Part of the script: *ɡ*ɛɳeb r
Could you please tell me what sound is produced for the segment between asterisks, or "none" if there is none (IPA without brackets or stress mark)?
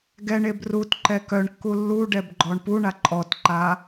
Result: ɡ